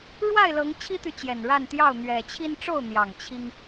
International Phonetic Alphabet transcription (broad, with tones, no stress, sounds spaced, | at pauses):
ɻ w a˥˨ ɪ̯ l ɤ˨˦ ŋ t͡ɕʰ i˦ t̪ y˨ t͡ɕ j ɛ˨˩ n ɻ a˥˨ n t̪ j ɑ˥˨ ʊ̯ n̪ ɥ ɛ˨˩ t͡ɕʰ i˦ n ʈ͡ʂ o˥˨ ʊ̯ n̪ j ɑ˨˩ ŋ t͡ɕʰ i˦ ŋ